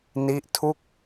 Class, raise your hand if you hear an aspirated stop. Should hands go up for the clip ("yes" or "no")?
yes